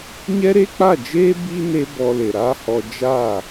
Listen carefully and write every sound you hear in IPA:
ɲɛ˦ɾe˦k͡pa˦˨d͡ʒeː˦ bi˦ ne˧ bɔ˧le˨ɾaː˦hɔ˧ d͡ʒaː˦˨

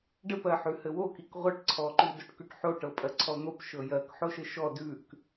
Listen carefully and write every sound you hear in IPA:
ɖɘpɜħʉ hɘwokik ʁʷɤʈǀʰɔǃʉdoʈ kʉʈħoʈɤpʼɜ ǀʰɔn̪op ʃɤjɜk ħoʃɘʃɔ dʉk

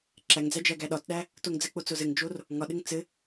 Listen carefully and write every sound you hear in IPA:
ǁæŋd͡zæ d͡ʒæɡæɗɒtɗæ | toŋd͡zɘk͡po t͡sozɘŋd͡ʒor | ŋɒɗɘŋ t͡sɘ

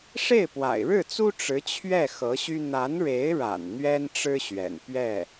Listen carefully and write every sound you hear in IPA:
ʂe˥˩ɪ̯pwa̰˨˩ɪ̯ɻɻ̩˥˩t͡su˥ ʈ͡ʂɻ̩˧˥t͡ɕʰɥɛ˥˩ xɤ˧˥ɕy˥ n̪a˧˥nɻe˧˥ɪ̯ɻa̰˨˩n n̪ɥɛ˥nʈ͡ʂɻ̩˥ɕɥɛ̰˨˩n pɥɛ˥˩

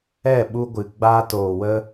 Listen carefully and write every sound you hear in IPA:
ɛ˦˨ ɓu˧ɡʷɨ˨ ɡ͡baː˧toː˨ wə˧

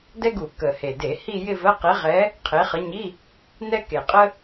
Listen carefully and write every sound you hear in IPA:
dɛ˥ɡu˧˩˧ kə˨˩he˨˩de˧˩˧ hi˥˧jɪ˥˧və˧˥˧ qe˨˦ʁɛ˨˦ | qʰe˨˦χə˨˦ɲi˧˥˧ | nɛ˥ke˨˩qʼə˥

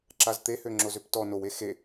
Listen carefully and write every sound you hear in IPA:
ǁazt̪ehø ŋ͡ǁozøptɔ nowe xe

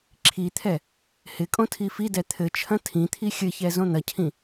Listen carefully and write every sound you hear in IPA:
ǁʰit̪ʰɛ | hɪkʼõ tʰifidɛ t̪ʰɘt͡ʃʰɐ̃ tʰĩt̪ʰi xʲɘçɛ zõn̪ɐcʰĩ

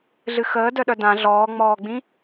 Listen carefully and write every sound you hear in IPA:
ɮɨxəːdœɗœ dã ɮɔːŋ͡mɔːɡ͡bĩ

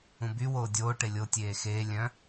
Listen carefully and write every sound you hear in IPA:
ũby woːdʲoː ʈelʲo tʲeːxeː lʲœ̃

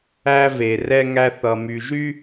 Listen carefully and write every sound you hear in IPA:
æ˦ve˨rɛ˦ŋæ˦ θʌ˨my˨ʒy˦

